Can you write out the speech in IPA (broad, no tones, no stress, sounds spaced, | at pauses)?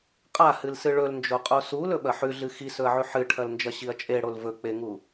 qʼ a h ɨ l s ɨ ɭ ɵ l n d͡ʒ o qʼ o s u l ɵ ɓ ɐ ħ ʉ ɮ ɨ x i s ɵ ɐ̯ ʕ ʉ ħ ɨ ʈʰ ɐ l n d͡ʒ ɐ ɕ i ɐ̯ t͡ʃʼ e ɽ o l v ɵ k͡p e ŋ u